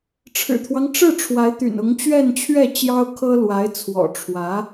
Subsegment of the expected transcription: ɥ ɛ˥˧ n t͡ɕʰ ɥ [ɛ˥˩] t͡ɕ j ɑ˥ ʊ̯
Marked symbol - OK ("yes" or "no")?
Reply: yes